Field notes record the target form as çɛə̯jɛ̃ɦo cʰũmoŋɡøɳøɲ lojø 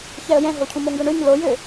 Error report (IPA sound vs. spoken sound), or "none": none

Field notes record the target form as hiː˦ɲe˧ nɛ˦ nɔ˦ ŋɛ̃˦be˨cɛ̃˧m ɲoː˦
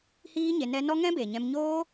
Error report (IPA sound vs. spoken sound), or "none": c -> ɲ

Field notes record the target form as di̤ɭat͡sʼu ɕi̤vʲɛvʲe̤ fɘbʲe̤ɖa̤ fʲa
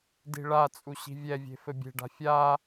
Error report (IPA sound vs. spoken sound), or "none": none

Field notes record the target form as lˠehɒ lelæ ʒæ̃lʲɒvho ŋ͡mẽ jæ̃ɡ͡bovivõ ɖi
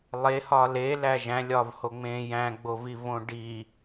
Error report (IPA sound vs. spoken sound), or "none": none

